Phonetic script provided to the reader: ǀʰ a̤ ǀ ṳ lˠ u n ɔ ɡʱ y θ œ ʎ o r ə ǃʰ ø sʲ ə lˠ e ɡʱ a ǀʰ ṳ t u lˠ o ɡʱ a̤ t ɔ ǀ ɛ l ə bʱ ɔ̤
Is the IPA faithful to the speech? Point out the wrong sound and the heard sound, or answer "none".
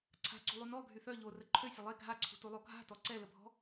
none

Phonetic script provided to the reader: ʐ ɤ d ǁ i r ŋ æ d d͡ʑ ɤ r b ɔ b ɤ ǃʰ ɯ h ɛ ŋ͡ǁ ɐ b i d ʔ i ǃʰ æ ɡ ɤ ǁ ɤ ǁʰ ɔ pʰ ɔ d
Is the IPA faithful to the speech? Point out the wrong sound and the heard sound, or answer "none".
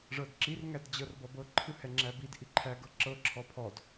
ɐ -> æ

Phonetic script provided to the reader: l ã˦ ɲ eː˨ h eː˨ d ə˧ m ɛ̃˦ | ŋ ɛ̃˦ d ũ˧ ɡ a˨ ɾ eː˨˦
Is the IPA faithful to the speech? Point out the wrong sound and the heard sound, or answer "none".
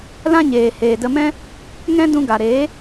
none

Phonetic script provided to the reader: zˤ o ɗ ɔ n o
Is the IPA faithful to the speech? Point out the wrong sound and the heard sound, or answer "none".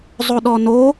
none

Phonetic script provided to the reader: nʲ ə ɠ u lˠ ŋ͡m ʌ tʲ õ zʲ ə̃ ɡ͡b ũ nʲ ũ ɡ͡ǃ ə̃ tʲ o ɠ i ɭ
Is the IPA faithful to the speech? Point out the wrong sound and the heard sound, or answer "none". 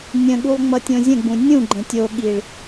ə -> ə̃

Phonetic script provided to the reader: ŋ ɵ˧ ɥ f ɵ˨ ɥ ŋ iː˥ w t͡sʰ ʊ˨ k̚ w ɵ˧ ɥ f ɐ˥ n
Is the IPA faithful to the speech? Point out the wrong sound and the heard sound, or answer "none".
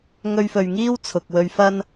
none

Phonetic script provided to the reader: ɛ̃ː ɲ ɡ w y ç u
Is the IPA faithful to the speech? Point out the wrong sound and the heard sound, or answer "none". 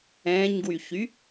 u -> y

